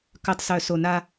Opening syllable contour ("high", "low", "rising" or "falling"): low